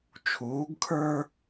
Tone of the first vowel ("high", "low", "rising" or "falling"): rising